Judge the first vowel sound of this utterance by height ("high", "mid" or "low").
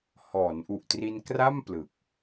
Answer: mid